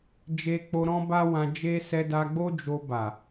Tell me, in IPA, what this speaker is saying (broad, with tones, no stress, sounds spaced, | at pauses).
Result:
d͡ʒ e˧ k͡p o˧ ɾ ɔ̃˦ b a˦ w ã˧ d͡ʒ e˦ s ɛ˧ d a˧ ɡ͡b o˦ d͡ʒ o˧ b a˨